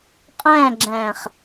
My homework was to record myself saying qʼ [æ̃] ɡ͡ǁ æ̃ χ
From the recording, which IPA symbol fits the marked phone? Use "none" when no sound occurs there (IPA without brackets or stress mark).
æ̃